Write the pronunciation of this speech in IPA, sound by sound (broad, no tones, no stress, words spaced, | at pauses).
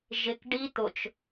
ʒɪk ɖi t̪ʊt͡ʃ